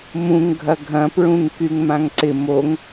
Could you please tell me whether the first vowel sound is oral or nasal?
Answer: nasal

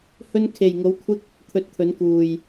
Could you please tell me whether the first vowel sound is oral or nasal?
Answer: oral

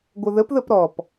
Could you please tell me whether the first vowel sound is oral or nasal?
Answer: oral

